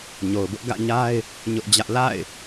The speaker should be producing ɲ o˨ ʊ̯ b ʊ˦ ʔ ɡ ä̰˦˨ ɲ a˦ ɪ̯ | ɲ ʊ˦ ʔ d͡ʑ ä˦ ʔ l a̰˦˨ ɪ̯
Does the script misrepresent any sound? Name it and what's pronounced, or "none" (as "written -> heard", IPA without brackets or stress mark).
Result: none